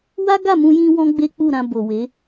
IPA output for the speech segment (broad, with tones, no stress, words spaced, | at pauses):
wa˦ ɡa˦˨ mũ˧jĩ˧ wɔ̃˦ɡ͡be˦k͡pu˦˨ɾã˧ bo˨we˨˦